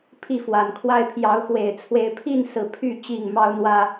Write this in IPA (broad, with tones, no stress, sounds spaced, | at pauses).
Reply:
pʰ i˥˨ f w a˨˩ n kʰ w a˦ ɪ̯ pʰ j ɑ˨˦ ʊ̯ x w e˨˩ ɪ̯ t͡sʰ w e˨˦ ɪ̯ pʰ i˥˨ n s ɹ̩˥˨ pʰ y˥˨ t͡ɕ i˥˨ ŋ m ɑ˦ ʊ̯ n̪ w ä˦